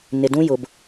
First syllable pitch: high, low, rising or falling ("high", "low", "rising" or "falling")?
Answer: low